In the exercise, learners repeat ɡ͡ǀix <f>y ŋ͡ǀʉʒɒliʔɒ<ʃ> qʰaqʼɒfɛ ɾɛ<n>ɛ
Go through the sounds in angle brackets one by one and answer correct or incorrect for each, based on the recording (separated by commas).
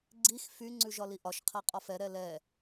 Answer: correct, correct, incorrect